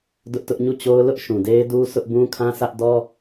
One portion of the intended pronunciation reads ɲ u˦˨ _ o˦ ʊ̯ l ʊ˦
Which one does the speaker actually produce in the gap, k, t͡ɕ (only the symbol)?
t͡ɕ